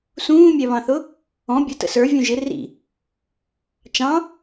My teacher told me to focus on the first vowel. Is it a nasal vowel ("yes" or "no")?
yes